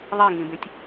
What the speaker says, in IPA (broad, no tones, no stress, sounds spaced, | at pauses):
ðˤ i ŋ ĩ b ẽ tʲ